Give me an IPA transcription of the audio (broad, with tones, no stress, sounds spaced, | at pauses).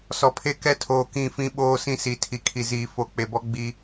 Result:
s ɔ˨ pʰ e˦ k ɛ˦ tʰ oː˨ k ĩ˦˨ f ĩ˦ ɓ oː˦ s ĩ˦ s i˨ tʰ i˨ kʰ i˨ z iː˨ f o˨ k͡p e˨ b ɔ˦ ɡ͡b i˦